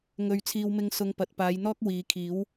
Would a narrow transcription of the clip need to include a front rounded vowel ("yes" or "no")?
no